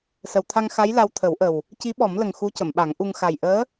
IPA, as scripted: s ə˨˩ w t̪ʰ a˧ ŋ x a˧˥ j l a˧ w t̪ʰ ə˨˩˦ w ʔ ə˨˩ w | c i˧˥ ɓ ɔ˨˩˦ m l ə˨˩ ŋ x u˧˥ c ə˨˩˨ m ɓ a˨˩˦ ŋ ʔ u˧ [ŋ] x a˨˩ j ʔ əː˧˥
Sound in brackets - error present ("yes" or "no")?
no